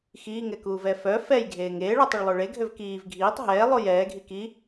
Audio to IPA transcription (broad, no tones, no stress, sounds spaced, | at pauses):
x iː ŋ ɛ k uː v ɛ f œ f ɛ j ɡʱ eː ŋ eː ɭ œ tˤ ə ɭ lˠ ø ɭ e ɡʱ ø v k iː v ɡʱ iː tˤ ɦ ɛː lˠ o j ɛː ɡʱ i k i